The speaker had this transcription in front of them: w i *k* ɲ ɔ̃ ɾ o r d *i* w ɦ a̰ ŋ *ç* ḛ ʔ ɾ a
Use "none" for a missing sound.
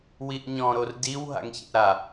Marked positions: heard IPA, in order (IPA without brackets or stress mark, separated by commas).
ʔ, i, ç